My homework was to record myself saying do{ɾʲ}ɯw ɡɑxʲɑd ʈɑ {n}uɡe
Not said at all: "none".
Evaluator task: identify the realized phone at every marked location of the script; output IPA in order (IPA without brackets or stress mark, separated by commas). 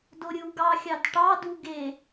ɾʲ, d